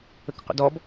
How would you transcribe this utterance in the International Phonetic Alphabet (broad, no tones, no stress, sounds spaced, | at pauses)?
ə k qʷ ə̰ d ɔ b